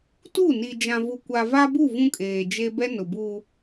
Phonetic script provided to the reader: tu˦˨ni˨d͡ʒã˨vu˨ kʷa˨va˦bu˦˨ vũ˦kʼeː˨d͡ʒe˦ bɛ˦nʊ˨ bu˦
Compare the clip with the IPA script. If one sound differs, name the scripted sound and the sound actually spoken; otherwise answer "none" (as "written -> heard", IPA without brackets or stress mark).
none